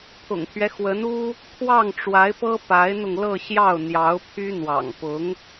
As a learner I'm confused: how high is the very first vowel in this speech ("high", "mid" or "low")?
high